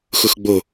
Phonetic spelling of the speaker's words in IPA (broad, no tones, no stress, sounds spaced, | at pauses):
x ʊ x ɡ͡b o